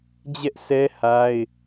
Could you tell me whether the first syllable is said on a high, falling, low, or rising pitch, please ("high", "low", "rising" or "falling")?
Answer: high